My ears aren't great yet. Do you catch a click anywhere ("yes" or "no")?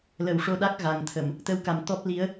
no